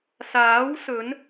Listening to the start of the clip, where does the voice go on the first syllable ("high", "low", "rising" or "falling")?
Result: rising